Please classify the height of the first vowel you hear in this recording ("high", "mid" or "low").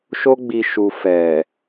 mid